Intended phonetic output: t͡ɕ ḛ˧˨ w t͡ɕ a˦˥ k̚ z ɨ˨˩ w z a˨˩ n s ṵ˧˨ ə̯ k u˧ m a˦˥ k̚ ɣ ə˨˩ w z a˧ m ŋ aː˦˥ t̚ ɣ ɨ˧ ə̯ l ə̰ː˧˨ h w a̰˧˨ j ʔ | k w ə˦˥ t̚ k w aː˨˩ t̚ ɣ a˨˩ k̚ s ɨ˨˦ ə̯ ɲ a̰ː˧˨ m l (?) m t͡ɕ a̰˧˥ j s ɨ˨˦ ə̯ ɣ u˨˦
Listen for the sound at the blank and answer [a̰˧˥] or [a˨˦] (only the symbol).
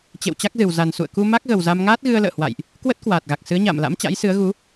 a̰˧˥